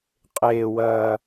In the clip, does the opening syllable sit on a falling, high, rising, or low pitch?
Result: low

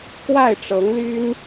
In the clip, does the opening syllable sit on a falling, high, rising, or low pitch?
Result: falling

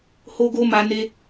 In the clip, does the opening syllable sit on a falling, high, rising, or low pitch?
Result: high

